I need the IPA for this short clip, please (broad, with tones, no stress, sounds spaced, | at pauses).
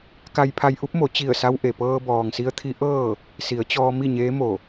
k a˧ j pʰ a˧ j ʔ u˧˥ p̚ m o˩˧ t͡ɕ i˧˩ ə̯ s a˧ w ʔ e˩ p ɤː˧ b ɔː˩ ŋ s i˧ ə̯ t̪ʰ i˧˥ ʔ ɤː˥˨ | s i˩˧ ə̯ t͡ɕ ɔː˧ m i˥˨ ɲ eː˧˥ m o˧˩